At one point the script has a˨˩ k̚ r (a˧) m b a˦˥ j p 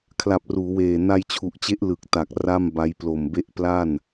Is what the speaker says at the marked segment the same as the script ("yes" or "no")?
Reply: no